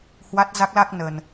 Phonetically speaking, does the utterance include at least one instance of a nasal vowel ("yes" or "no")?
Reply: no